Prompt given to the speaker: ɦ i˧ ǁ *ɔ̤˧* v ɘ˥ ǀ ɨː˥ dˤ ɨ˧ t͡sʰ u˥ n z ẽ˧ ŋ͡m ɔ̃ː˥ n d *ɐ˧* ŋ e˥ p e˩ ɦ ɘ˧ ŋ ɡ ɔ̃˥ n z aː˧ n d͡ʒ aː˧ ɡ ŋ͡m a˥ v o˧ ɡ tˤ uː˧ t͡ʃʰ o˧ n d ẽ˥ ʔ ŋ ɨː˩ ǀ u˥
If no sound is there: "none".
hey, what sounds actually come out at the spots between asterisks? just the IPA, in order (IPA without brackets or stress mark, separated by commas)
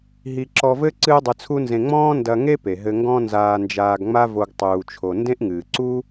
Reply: ɔ˧, ɐ˧